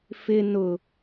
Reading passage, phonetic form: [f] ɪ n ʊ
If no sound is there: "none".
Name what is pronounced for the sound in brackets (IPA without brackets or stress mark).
f